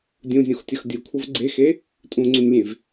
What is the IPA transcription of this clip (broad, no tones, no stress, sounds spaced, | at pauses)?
dʲ ũ zʲ õ x tʲ ʌ x dʲ ɯ kʷʰ ʌ v ɡ͡ǀ e x e | tʼ ũ ŋ͡ǀ ũ nʲ lʲ ẽ v